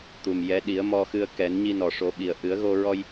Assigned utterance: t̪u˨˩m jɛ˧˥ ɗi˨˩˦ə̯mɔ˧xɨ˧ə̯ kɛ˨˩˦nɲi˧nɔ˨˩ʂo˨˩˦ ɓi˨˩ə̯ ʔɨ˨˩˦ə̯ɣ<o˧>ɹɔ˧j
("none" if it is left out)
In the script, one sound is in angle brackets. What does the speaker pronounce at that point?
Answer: o˧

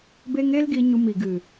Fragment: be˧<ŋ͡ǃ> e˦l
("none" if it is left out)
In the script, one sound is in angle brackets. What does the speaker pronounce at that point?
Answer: ŋ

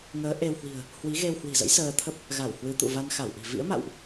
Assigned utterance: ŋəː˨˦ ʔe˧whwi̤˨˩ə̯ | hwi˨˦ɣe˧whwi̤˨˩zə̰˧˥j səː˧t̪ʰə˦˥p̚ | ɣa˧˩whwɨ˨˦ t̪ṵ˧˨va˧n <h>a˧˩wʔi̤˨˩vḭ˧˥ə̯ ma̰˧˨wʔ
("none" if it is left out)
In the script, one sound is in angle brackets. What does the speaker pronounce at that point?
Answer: x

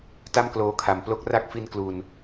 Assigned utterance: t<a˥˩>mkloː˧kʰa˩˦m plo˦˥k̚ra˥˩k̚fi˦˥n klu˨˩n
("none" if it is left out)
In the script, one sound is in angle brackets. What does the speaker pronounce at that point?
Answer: a˥˩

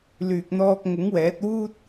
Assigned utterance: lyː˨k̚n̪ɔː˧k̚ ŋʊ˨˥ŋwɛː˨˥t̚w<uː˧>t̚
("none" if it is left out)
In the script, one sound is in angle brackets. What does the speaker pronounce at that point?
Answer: uː˥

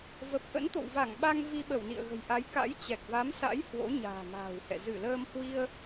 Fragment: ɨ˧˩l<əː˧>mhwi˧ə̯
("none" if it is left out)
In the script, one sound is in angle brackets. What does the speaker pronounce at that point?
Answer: əː˧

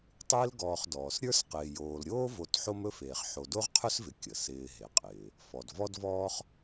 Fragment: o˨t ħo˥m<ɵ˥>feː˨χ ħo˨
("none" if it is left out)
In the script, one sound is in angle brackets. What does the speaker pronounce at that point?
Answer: ɵ˥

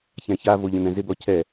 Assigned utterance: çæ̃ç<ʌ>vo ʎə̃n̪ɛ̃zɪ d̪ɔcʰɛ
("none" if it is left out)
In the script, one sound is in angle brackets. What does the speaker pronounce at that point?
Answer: a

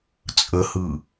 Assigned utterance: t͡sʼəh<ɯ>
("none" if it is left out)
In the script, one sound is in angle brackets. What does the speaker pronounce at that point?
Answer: ɯ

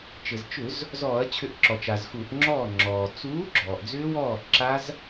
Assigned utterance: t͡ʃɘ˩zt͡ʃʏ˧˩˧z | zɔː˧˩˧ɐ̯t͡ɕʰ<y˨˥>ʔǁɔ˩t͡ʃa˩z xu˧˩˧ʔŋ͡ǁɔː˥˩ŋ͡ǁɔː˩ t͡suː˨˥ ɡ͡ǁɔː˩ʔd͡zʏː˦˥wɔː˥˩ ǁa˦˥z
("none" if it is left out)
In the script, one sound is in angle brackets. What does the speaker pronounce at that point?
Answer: ʏ˨˥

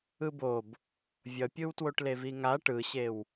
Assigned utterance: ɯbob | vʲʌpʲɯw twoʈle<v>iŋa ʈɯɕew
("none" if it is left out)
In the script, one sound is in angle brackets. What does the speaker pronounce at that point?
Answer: v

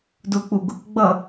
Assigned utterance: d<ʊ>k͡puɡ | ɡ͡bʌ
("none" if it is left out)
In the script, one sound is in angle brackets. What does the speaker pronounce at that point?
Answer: ʊ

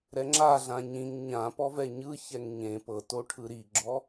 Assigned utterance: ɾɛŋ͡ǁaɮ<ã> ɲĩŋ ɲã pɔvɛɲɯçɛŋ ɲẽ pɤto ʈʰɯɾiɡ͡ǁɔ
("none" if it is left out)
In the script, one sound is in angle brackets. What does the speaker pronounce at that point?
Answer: ã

